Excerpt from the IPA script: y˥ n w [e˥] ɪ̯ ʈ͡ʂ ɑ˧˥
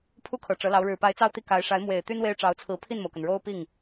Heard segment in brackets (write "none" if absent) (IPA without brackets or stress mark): e˥